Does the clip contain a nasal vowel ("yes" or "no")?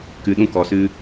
yes